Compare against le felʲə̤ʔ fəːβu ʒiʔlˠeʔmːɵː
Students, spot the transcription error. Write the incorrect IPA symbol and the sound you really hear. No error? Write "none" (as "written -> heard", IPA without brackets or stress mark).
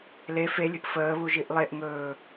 mː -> ŋ